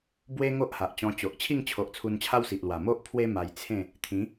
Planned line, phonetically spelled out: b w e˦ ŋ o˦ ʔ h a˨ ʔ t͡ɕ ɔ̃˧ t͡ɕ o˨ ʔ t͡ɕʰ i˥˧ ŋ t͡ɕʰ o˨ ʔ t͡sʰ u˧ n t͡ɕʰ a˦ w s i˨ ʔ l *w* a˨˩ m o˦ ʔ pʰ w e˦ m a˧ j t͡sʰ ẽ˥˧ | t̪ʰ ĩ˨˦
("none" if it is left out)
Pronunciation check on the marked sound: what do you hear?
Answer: w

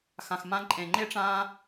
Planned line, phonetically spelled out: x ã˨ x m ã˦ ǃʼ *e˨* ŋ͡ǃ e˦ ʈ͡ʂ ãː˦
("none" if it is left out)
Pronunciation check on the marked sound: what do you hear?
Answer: ẽ˨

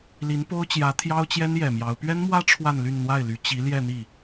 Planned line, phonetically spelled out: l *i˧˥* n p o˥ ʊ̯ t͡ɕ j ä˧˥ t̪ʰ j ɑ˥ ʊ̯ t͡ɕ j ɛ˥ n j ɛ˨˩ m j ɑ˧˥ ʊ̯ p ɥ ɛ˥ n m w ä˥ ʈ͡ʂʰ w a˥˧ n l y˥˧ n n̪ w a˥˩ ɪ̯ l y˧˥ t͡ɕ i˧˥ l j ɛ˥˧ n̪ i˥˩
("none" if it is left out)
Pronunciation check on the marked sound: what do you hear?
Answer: i˧˥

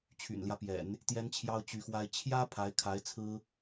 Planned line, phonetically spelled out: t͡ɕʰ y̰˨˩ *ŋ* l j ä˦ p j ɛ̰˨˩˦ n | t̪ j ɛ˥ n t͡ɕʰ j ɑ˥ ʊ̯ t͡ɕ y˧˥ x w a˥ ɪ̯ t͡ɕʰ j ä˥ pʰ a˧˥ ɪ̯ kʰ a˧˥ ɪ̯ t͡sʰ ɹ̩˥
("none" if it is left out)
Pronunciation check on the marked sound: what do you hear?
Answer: n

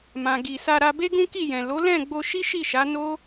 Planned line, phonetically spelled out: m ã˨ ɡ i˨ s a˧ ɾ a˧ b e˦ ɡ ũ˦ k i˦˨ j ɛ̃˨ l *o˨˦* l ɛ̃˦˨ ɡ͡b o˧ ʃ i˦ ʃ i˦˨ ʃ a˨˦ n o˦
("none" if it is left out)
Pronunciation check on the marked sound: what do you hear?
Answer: o˨˦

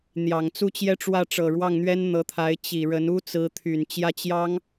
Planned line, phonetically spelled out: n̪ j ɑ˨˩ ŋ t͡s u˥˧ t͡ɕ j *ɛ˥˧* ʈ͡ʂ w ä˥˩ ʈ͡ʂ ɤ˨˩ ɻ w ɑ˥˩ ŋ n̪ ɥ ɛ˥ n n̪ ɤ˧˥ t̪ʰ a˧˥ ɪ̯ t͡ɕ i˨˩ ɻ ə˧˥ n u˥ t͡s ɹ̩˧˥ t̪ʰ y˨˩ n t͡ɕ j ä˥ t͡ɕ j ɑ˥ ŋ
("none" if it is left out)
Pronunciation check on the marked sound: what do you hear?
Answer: ɛ˥˧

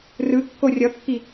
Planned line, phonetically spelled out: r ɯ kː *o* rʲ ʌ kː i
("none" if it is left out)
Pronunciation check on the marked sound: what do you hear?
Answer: o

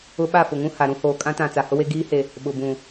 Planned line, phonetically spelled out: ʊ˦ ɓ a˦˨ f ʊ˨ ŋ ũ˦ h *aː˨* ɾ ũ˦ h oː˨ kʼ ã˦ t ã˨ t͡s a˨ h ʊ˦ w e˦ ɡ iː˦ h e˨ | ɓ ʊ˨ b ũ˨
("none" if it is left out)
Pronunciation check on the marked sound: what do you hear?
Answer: a˨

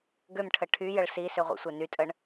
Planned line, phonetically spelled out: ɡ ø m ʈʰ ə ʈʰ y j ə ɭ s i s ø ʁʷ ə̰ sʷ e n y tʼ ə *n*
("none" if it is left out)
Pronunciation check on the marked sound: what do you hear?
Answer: ɳ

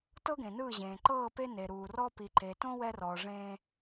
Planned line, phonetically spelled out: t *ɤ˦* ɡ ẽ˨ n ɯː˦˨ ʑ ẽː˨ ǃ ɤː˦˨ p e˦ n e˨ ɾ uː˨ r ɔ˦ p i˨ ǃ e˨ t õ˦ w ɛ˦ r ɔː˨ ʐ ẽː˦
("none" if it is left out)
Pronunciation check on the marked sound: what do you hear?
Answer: ɤ˦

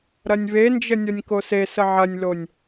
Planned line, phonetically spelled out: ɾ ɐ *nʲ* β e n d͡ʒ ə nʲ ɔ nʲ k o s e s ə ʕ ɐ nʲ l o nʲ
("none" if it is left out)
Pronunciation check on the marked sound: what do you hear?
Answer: nʲ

